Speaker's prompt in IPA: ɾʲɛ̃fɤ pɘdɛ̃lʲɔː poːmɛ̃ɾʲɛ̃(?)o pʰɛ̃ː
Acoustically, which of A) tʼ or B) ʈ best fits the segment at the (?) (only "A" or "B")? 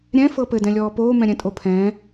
A